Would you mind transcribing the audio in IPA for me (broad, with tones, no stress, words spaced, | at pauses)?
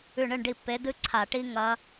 ʉ˥˩ɳɨ˥˩ɳɖi˥˩ pːe˨˥dɨ˦˥ǀʰa˧˩˧ ʈi˦˥ŋɐ˦˥